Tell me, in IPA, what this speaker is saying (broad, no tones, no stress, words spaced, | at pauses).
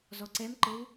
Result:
zɔǀɛmǃɘw